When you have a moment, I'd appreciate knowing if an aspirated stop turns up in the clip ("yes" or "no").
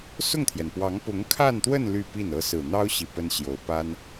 yes